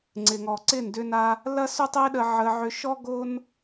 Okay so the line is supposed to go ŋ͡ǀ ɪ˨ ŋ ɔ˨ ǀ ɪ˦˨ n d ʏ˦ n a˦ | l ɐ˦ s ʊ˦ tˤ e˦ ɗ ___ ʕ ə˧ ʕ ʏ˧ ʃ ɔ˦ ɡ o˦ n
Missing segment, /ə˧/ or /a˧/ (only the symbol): ə˧